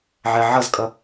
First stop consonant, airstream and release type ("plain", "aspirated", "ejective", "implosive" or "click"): ejective